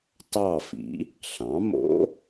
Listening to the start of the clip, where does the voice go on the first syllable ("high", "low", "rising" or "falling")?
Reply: falling